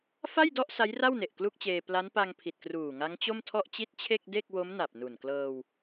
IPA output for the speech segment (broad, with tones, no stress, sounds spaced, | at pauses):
f a˥˩ j d ɔ˥˩ ʔ s a˦˥ j r a˥˩ w n e˨˩ ʔ k l u˥˩ k̚ t͡ɕ eː˧ p l a˦˥ n p a˧ ŋ pʰ i˨˩ t̚ k r uː˨˩ ŋ a˦˥ ŋ t͡ɕ o˥˩ m tʰ ɔ˥˩ ʔ t͡ɕ i˥˩ t̚ t͡ɕʰ e˥˩ k̚ d e˥˩ k̚ w o˦˥ m n a˨˩ p̚ n u˨˩ n k l ɤː˧ w